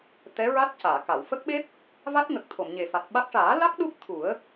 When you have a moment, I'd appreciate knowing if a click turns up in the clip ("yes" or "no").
no